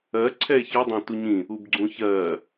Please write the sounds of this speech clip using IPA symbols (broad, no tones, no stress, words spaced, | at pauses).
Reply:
ɜ ǀʰɛe̯çɔdˤã tuɲĩ | ubɡ͡ǀũçɜ